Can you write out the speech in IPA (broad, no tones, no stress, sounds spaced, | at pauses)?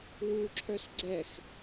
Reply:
w u ǁʰ œ s ɡ͡ǀ ɛ x